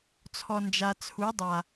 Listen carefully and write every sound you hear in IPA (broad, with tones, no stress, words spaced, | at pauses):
t͡sʰɔ˨nd͡ʒa˨ t͡sʰu˨˦dˤa˨